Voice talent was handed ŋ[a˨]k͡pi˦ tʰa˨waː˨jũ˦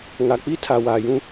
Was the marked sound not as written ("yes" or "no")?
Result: no